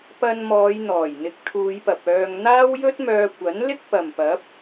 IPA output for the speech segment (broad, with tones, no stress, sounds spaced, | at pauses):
p ɐ˧ n m ɔː˨˧ j n̪ ɔː˨˩ j n̪ ɪ˨˥ k̚ t̪ʰ uː˨˧ j p ɐ˨ p̚ œː˧ ŋ n̪ aː˥ w j ɵ˥ t̚ m œː˧ kʷ ɐ˨˥ n l ɪ˥ k̚ p ɐ˨ m p ɐ˨˥ p̚